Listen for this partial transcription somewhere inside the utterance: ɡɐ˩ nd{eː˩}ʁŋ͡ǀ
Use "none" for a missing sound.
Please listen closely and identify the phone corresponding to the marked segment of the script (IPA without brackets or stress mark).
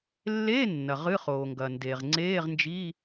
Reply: e˩